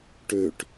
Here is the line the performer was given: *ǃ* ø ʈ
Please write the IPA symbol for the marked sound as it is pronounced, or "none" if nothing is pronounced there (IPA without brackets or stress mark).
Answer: ʈ